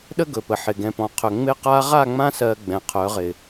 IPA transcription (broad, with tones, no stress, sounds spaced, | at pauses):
ɗ ə˦ ɡ ɵ˨ p ə˨ ħ ɪ˨ ɡ ɛ̃˨ p ɔ̃˨ qʰ ɵ˨ ŋ͡m ɪ˦ q a˦ ʁ a˦˨ ŋ͡m ã˦ s ɜ˨ ɡ͡b ɛ̃˨ qʰ œ˨˦ ʁ ɪ˨